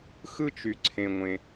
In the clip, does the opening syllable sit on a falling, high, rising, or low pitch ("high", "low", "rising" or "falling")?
high